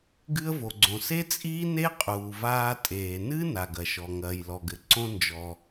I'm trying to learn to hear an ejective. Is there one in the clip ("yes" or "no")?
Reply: yes